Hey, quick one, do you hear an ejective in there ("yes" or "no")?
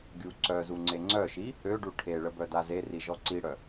no